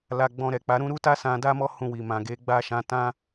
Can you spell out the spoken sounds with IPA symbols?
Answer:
l a˧ ɡ͡b ɔ̃˧ ɾ ɛ˨ k͡p a˨˦ ɾ ũ˦ ɾ u˦ t a˦ s ã˧ d a˦ m ɔ˦ h ũ˦˨ w i˨ m ã˨ ɡ e˨˦ ɡ͡b a˦˨ ʃ ã˧ t ã˦

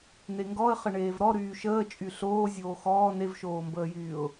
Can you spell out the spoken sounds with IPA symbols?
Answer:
n e ŋ ɡ ɔ ə̯ χ ə ɳ eː v ɾ ɔ ɾ yː ʃ əː t͡ʃʼ y ɬ oː zʲ oː x ɔː n e v ʃ oː m b əː j yː ʊ̯

